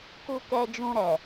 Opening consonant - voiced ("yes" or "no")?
no